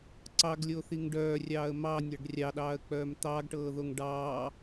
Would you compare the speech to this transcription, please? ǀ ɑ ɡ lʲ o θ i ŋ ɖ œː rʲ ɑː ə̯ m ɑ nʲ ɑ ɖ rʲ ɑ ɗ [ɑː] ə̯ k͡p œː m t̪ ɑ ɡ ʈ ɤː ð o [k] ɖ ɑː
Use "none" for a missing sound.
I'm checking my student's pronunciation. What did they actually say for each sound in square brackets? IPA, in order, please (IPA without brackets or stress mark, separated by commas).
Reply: ɑː, ŋ